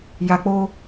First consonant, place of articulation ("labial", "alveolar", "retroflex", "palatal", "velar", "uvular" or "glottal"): palatal